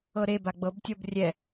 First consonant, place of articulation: alveolar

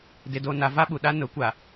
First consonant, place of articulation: alveolar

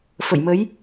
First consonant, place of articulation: labial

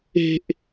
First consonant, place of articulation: glottal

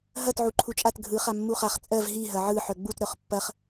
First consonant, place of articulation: glottal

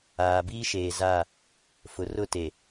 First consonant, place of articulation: labial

